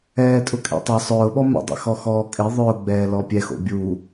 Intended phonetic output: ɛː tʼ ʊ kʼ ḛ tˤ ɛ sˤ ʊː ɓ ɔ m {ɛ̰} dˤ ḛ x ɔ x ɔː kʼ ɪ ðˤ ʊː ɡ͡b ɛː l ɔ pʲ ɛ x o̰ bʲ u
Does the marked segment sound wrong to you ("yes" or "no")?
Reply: no